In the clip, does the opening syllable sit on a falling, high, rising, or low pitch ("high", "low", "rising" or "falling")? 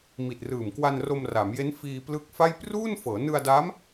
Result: low